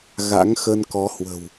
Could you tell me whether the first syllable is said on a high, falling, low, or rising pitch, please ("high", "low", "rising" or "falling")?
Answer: rising